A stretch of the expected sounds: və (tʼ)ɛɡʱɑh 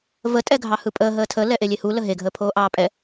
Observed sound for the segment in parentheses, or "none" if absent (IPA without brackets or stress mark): tʼ